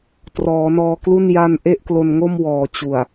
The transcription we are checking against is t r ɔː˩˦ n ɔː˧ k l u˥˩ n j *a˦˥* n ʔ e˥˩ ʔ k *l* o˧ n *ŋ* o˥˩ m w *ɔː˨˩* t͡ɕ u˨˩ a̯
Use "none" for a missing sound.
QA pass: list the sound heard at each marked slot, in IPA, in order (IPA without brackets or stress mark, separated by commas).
a˧, l, ŋ, ɔː˨˩